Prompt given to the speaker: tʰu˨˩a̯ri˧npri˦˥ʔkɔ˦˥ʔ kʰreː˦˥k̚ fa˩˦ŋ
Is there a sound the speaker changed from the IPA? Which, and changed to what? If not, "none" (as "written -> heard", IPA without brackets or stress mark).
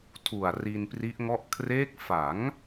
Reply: k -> ŋ